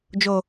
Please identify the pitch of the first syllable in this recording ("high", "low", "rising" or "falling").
low